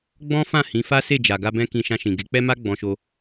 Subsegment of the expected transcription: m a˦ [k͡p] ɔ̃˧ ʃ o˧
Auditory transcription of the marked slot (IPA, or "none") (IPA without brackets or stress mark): ɡ͡b